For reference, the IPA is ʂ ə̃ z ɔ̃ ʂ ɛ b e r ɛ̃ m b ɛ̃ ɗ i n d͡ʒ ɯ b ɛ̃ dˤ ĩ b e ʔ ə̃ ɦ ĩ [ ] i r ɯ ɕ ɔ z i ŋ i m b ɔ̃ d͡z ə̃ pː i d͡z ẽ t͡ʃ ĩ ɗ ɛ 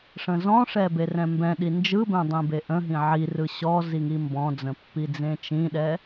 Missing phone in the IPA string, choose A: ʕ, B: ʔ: A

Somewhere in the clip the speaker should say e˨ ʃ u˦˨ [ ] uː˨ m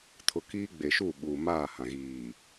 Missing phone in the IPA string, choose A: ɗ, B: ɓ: B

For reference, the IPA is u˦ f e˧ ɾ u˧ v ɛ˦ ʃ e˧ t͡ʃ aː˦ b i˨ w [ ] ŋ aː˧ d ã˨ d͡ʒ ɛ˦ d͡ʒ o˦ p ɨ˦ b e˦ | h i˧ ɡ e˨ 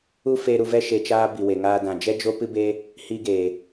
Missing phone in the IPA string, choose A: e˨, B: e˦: A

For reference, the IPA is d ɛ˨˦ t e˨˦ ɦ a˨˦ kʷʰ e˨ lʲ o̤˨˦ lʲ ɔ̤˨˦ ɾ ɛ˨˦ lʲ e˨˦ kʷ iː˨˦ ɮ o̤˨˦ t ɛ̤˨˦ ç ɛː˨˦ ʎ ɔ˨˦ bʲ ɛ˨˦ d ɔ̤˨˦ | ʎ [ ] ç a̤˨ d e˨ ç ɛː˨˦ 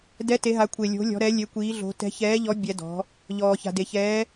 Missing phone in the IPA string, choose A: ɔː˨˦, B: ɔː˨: B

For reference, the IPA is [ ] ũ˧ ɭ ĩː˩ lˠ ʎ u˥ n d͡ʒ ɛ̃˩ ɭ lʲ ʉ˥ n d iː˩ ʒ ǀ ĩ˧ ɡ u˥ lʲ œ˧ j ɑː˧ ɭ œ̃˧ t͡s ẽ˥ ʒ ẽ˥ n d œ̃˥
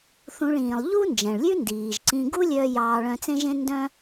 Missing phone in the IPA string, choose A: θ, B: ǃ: A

